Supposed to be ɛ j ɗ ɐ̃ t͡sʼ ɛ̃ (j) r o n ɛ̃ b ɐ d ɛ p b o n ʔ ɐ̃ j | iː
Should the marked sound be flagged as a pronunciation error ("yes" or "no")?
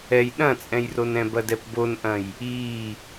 no